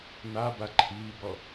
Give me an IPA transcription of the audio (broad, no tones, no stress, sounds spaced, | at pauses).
n a b a ǃʰ iː b ɔ